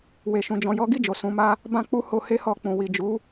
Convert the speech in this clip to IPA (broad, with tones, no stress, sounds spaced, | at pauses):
w e˧ ʃ ũ˧ d͡ʒ ɔ̃˧ j ɔ˦ ɡ i˦˨ d͡ʒ o˨ s ũ˨˦ m a˦ | b ã˦ k͡p u˦ h o˦ h e˦ h ɔ˧ k͡p ũ˨ w i˨ d͡ʒ u˨˦